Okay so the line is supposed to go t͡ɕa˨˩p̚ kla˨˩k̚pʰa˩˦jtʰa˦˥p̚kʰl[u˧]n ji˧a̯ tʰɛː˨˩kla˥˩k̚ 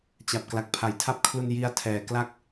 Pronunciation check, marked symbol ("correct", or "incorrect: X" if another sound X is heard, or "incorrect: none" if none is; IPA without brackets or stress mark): correct